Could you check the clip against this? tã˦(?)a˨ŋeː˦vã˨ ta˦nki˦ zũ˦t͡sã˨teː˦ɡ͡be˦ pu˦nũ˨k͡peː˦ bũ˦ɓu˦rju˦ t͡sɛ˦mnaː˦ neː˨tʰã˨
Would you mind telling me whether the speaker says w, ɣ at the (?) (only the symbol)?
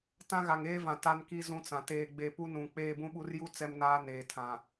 ɣ